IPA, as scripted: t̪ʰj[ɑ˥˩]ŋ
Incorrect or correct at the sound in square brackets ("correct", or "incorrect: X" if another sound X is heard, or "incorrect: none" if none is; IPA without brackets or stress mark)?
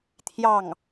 correct